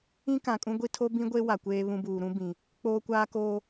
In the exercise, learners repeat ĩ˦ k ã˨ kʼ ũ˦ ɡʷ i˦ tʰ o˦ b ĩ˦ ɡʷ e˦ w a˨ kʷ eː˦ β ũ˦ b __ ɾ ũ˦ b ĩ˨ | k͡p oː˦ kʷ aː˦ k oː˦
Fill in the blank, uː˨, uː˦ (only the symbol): uː˨